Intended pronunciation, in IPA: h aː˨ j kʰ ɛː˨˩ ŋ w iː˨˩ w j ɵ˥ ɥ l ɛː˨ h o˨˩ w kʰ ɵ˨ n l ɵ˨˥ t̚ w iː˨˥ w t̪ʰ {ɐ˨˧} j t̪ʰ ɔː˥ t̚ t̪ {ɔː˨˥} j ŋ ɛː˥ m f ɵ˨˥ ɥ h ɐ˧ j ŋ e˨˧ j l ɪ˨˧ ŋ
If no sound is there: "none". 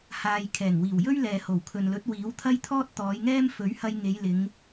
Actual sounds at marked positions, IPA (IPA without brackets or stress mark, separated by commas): ɐ˥, ɔː˨˧